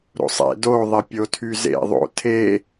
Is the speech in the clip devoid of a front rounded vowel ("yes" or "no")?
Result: no